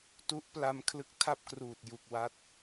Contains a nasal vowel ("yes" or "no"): no